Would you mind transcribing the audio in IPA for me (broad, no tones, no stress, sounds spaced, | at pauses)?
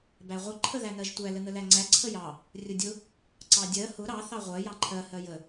b æ ʁʷ ə ǃʰ ə ð æ n ɜ ʒ tʷ æ l ə n ə l æ ŋ͡ǀ æ ǀʰ ə j ɑ | rʲ ʊ dʲ ʊ | ǀ ɑ dʲ ɜ h ʊ ɾ ɑ θ ɑ ʁʷ ɜ j ɑ ǃʰ ɜ h ɜ j ə